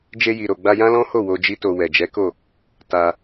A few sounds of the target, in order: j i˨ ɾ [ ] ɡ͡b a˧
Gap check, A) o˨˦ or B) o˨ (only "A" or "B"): B